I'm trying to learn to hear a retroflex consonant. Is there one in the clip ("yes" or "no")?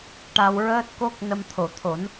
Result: yes